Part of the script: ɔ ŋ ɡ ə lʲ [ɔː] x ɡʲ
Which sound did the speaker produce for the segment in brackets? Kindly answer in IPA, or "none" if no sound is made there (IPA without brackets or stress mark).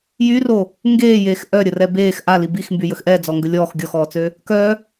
ɔː